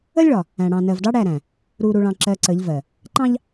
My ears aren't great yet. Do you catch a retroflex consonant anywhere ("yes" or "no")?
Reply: yes